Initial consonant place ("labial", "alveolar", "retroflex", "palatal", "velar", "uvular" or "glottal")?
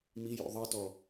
labial